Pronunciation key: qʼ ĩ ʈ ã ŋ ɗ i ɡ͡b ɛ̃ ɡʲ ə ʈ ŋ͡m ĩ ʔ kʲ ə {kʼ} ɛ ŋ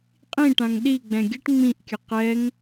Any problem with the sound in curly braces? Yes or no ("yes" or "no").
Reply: yes